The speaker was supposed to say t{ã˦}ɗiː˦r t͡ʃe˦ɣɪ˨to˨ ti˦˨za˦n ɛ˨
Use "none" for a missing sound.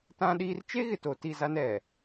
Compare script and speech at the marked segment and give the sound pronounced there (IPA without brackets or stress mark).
ã˦